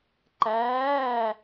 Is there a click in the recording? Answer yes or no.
yes